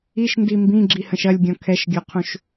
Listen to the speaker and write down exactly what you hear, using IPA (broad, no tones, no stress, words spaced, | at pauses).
iʃndi mbĩɡ͡ǁihə̃ʃ ɐlʲɡʲɔ̃ kʰɛʃɡʲɔqʰũʃ